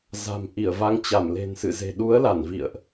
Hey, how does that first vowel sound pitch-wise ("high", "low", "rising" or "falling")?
low